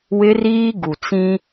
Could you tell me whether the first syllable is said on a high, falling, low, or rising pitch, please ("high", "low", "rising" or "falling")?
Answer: high